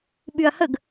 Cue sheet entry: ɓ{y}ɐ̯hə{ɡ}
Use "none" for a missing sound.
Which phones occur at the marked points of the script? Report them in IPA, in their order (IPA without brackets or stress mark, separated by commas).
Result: y, ɡ